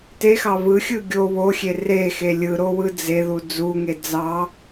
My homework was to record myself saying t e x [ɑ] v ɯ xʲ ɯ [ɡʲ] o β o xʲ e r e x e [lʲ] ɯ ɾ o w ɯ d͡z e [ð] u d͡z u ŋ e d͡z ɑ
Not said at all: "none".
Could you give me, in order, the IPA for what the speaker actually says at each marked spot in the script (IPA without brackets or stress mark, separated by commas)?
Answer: ɑ, ɡʲ, lʲ, ð